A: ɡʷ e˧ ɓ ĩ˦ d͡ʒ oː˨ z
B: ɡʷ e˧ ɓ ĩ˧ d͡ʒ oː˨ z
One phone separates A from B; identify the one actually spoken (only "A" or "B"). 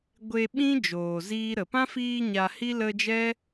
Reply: A